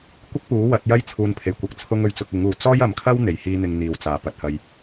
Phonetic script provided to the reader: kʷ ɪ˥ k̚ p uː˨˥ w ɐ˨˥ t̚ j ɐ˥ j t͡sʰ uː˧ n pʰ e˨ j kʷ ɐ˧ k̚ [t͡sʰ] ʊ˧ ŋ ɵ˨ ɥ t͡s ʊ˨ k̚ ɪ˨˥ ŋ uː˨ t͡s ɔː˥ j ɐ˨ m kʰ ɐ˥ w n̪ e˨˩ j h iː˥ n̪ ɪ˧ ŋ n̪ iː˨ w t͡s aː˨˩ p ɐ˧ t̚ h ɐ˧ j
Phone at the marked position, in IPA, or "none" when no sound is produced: t͡sʰ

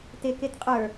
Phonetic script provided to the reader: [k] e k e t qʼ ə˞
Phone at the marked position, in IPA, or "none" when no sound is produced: t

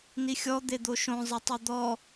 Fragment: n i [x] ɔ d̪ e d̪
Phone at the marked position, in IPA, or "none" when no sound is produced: xʲ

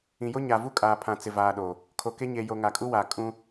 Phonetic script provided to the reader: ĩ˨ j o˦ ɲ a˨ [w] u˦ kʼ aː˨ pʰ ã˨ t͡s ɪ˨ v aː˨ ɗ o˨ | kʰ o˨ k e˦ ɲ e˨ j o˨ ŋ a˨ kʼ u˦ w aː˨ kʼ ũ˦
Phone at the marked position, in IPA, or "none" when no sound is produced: v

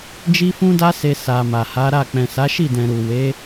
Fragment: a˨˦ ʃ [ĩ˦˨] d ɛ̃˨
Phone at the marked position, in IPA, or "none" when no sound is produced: i˦˨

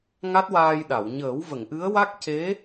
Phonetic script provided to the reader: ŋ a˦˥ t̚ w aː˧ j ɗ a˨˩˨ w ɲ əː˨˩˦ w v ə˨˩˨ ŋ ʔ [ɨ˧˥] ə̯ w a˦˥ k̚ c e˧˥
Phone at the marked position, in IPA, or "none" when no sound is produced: ɨ˧˥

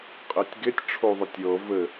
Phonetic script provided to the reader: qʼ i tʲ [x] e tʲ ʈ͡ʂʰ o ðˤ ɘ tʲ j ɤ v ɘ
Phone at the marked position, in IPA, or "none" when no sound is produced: ɡ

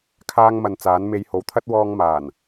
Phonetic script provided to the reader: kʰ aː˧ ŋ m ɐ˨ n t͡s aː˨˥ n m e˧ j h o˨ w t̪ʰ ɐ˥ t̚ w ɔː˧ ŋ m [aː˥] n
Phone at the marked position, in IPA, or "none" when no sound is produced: aː˨˩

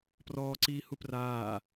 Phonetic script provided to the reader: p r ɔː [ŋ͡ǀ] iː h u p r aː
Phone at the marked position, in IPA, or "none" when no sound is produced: ǀ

